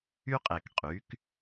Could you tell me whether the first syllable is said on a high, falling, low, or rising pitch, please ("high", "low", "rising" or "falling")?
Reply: high